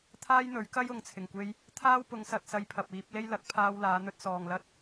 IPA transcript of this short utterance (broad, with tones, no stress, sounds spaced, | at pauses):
t̪ʰ aː˥ j n̪ ɵ˨˥ ɥ k ɐ˥ j ʊ˨ ŋ t͡sʰ ɪ˨˩ ŋ kʷ e˧ j | t̪ʰ aː˥ w p ʊ˨˧ ŋ s ɐ˧ t̚ s ɐ˧ j pʰ ɐ˨ p̚ iː˨˥ p̚ l e˥ j l ɐ˨˥ k̚ pʰ aː˧ w l aː˨˧ n̪ ɵ˥ t̚ s ɔː˨ ŋ l ɐ˥ t̚